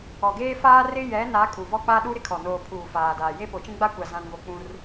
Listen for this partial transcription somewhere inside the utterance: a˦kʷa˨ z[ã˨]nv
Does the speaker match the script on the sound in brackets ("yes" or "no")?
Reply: yes